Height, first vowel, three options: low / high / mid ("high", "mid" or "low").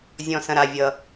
mid